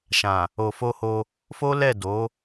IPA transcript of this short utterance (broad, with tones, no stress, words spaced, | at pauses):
ʃã˨ | o˨fo˧ho˧ | fo˦ lɛ˦˨ do˨˦